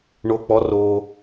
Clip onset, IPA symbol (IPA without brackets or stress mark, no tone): ɳ